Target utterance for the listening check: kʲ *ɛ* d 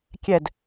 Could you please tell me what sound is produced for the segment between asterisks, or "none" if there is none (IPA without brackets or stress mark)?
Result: ɛ